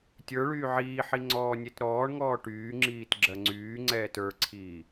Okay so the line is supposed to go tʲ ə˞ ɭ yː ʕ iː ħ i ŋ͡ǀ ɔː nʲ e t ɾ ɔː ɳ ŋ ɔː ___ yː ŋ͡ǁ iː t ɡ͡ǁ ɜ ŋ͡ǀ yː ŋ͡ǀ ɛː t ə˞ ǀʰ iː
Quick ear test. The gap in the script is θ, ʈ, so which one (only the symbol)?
ʈ